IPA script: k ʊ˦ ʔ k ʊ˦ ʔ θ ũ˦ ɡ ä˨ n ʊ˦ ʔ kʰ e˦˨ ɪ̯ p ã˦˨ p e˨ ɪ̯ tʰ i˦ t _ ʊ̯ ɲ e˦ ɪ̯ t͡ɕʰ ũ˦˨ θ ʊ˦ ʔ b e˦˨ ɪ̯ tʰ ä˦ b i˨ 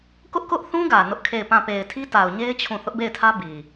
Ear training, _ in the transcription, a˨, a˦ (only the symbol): a˨